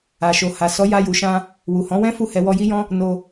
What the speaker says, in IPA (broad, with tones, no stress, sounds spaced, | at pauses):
a˨ ʃ o˨ h a˨ s ɔ˨˦ j a˧ j u˨ ʃ ã˧ | w u˨ h ɔ̃˨˦ w ɛ̃˦ f u˦˨ h ɛ˧ w ɔ˧ j i˦ j ɔ̃˦ | n o˧